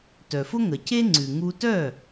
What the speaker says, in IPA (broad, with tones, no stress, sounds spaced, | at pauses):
t œ˩ f ʊ˥ ŋ ə˩ c e˥ ŋ͡ǀ ʉ˩ ŋ u˧ t œ˥˩